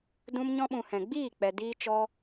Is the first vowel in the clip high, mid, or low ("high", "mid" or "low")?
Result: high